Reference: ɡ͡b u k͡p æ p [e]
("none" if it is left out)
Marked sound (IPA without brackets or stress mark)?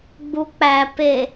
e